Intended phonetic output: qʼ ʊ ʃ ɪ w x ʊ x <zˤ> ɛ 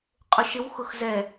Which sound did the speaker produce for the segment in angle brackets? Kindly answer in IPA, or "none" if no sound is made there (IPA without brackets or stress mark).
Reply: z